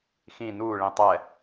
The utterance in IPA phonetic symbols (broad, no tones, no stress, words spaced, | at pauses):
xĩ nuː ɭĩtˤɛ